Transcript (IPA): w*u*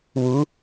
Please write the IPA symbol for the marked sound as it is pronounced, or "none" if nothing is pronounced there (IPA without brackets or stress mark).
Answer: u